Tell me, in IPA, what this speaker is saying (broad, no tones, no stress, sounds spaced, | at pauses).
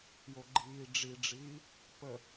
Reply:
j o ɡ͡ǃ iː ɖ͡ʐ i ɖ͡ʐ iː | p ə